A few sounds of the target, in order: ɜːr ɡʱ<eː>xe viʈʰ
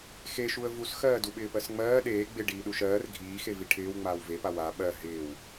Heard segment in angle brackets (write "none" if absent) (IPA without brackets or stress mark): iː